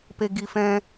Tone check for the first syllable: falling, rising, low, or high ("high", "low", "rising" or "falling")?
low